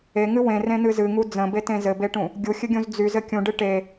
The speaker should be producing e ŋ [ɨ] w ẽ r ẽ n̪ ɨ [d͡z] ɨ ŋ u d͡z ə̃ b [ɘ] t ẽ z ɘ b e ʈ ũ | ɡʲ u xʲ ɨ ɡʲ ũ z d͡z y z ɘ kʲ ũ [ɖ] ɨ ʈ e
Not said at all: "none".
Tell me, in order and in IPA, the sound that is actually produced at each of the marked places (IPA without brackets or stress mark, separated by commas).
ɨ, z, e, ɖ